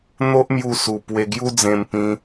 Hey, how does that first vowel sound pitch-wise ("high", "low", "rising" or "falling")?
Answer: high